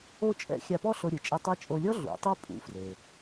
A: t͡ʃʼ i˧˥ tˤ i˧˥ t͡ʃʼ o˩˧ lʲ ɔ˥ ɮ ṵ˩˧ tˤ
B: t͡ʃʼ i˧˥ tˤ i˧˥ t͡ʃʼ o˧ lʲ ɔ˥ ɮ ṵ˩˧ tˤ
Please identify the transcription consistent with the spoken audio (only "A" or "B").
B